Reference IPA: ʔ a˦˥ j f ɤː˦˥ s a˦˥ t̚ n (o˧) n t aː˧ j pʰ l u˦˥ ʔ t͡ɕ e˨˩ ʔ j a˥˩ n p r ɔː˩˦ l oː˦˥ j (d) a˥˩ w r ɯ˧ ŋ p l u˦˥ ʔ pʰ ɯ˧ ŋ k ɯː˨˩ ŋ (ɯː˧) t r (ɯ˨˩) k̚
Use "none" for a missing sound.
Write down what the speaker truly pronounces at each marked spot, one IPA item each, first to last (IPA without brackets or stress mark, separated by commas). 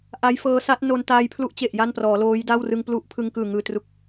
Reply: o˧, d, ɯː˨˩, u˨˩